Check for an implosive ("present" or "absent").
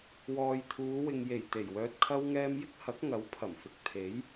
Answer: absent